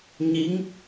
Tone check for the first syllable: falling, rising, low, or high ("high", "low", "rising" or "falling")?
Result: rising